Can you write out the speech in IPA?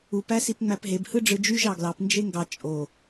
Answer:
u p æ s i p ŋ͡m æ p ɦ e b h ɯ ɖ͡ʐ ɯ d͡ʒ y ʒ ɑ ɡ l ɑ p n d͡ʒ e ŋ ɡ ɑ t͡ʃʼ o

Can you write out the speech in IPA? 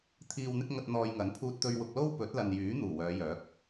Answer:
t̪ʰ iː˨ w n̪ ɪ˧ k̚ ŋ ɐ˨ t̚ n̪ ɔː˨ j ŋ ɐ˨˥ n pʰ uː˧ t̚ t̪ ɵ˧ ɥ w ʊ˨ k̚ l o˥ w p ɵ˨˥ t̚ l ɐ˨ n j yː˨˥ n̪ uː˨˩ w œː˨˧ j œː˨˥ k̚

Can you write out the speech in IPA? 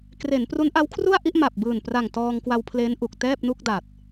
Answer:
k r e˩˦ n p r u˦˥ n ʔ a˦˥ w kʰ r u˥˩ a̯ ʔ i˥˩ ʔ m a˨˩ p̚ b ɯː˨˩ n p r a˨˩ ŋ t ɔː˧ ŋ k w a˧ w pʰ l e˦˥ n ʔ u˨˩ k̚ t ɛː˥˩ p̚ n u˥˩ k̚ d a˨˩ t̚

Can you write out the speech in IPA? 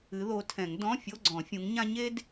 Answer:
ɨ˨˦ ð o˨˦ tʰ ɛ̃˨˩˦ ŋ d ɔ̃˧˥˧ fʲ o˧˥˧ ɡ͡ǀ ɔ̃˨˩˦ fʲ ũ˨˦ ŋ ɲ ã˥ ɲ e˥ d

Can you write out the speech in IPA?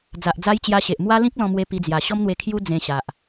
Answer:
d͡z a˨ ʔ d͡z a˦ j t͡ɕ j a˧ ɕ e˨ ʔ m w a˦ l ĩ˦ k̚ l ɔ̃˧ m w e˧ p i˧ d͡z j a˨˩ ɕ ɔ˦ m n̪ w e˧ kʰ j u˦ d͡z ẽ˧ ɕ a˨ ʔ

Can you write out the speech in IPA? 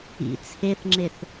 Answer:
ḭ t͡sʰ e θ ŋ͡ǁ e θ

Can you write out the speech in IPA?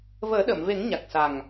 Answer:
v əː˨˩˦ ɗ ə˨˩˨ m v e˨˩˦ ŋ ɲ a˨˩ k̚ s a˨˩ ŋ

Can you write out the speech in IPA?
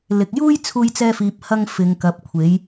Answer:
l ɪ˨ k̚ j uː˥ j t͡sʰ uː˥ j t͡s ɛː˥ f iː˧ p̚ h ɐ˥ ŋ f ɪ˨˧ ŋ k ɐ˨˥ p̚ kʷʰ e˨˥ j

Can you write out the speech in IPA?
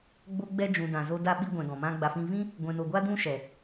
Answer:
ɡ͡b o˦ ɡ͡b ɛ˦ d͡ʒ ũ˨ d ã˨ z o˧ d a˧ ɓ i˧ ɡʷ ɛ̃˨ ɡ ɔ̃˨ m ã˦ ɡ͡b a˧ f ĩ˦ v ĩ˦ | ɡʷ ɛ̃˨ n o˨ ɡʷ a˦ d ũ˦ ʃ ɛ˨

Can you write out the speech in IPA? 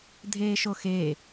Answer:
dʱ eː ʃ o x eː

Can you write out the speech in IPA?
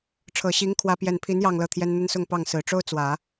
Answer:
ʈ͡ʂʰ ɤ˨˩ ɕ i˧˥ ŋ kʰ w ä˥ p j ɛ˥˩ n pʰ i˧˥ n j ɑ˥˧ ŋ l ɤ˥˩ t̪ʰ j ɛ˥ n n̪ ə˥ n s ʊ˥˧ ŋ p ɑ˥˩ ŋ s ɹ̩˨˩ ʈ͡ʂ o˥ ʊ̯ t͡s w ä˨˩˦

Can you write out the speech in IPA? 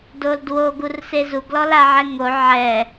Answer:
d o l d w o ɡ u r s e z u ɡ l ɔ l a ʕ ɛ ŋ o ʕ ɛ

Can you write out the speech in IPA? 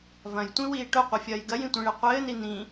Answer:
v ɐ̃ j tʷ ĩ w iː ʈ o qʷ i fʲ ɐː j ɡ ɐ j ĩ tʷ ĩ ɭ e qʷ ɘː n i n ĩ

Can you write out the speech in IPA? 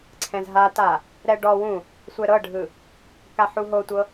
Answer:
ǀʰ ɛ̃ z ɦ a t a | ɾ ɛ ɖ ɔ w ũ | sʷ ɛ ɾ ɤ ɖʱ ɯ | k a ħ u ɦ o tʷ ɤ

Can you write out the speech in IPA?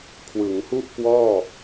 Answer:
kʰ w ɯ˩˦ ŋ h u˥˩ ʔ k w ɔː˥˩

